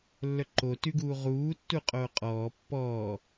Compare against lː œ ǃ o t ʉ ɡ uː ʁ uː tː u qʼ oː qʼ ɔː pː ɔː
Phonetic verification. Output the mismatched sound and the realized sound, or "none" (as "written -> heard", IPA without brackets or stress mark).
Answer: none